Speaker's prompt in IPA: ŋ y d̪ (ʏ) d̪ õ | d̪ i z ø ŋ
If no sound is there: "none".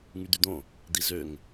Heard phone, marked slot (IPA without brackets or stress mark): y